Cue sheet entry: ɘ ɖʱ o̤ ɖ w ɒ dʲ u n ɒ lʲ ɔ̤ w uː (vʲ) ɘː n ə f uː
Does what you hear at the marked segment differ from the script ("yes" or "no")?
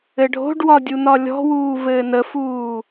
yes